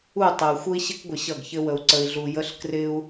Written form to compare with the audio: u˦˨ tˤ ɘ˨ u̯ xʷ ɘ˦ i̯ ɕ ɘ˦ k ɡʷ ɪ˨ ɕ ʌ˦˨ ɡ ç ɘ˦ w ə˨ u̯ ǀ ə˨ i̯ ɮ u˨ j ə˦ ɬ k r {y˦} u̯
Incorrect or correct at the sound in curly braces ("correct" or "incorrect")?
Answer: incorrect